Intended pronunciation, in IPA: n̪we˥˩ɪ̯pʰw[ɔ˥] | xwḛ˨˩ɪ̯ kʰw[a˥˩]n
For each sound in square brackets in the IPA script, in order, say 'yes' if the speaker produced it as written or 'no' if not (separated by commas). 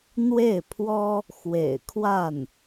yes, yes